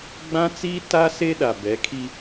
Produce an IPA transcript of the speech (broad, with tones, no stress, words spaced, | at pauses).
ɡ͡bã˦t͡siː˦ ta˦ se˦ɗa˨ bɛ˨˦kʰi˦